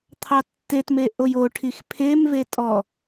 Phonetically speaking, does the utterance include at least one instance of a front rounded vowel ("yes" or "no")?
no